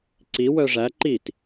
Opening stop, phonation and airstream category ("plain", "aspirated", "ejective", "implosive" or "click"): click